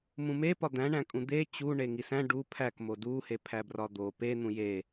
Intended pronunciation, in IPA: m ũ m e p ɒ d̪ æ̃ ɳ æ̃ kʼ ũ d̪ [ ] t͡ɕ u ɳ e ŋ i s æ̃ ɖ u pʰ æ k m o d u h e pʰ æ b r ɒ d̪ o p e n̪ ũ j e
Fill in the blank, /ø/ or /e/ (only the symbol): e